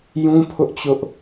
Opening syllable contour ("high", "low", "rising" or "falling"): high